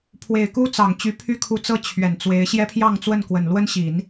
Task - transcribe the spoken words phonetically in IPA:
pʰ w e˨˩ ɪ̯ k u˥ t͡s ɑ˨˩ ŋ t͡ɕ y˧˥ pʰ y˥ kʰ u˧˥ t͡s ɤ˥ t͡ɕʰ ɥ ɛ˨˩ n t͡s w e˧˥ ɪ̯ ɕ j ɛ˥ pʰ j ɑ˥˧ ŋ t͡s w ə˥˩ n k w ə˨˩ n l w ə˥ n ɕ i˨˩˦ n

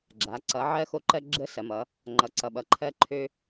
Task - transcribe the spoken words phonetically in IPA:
ɡ͡ǁ a˩˧ ǀ ʌ˩˧ ʕ ɜ˦ x o˦ ǃ ɜ˦ ɡ͡ǁ ə˦ s ɐ˩˧ m ʌ˩˧ | ŋ͡ǃ ʌ˩˧ ǀ ʌ˩ ɓ ʌ˩ ǃʰ ɜ˦ ǃʰ ø˦

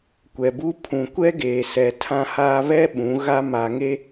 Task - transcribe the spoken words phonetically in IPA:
kʷ ɛ˨ b u˦ pʰ ũ˨ kʷ ɛ˦ ɡ eː˨ s ɛ˨ tʰ ã˦ h aː˦ β ɛ˦ ɓ ũ˨˦ ɣ a˦ m a˨ ŋ e˦

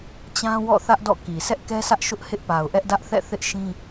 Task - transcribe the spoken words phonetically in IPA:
t͡ɕ ã˦ w ɔ̰˦˨ θ ä˦ ʔ d ɔ̰˦˨ k i˨ s ɛ˦ ʔ k ɛ˦ s ä˦ ʔ ʃ ʊ˦ ʔ h ɪ˦ ʔ p a˨ ʊ̯ ʔ ɛ˦ ʔ d ä˦ ʔ θ ɛ̰˦˨ θ ɪ˦ ʔ ʃ ĩ˦

